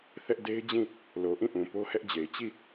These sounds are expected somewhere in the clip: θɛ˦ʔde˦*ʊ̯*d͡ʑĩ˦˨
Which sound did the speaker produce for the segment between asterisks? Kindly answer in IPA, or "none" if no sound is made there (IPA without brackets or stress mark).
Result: ɪ̯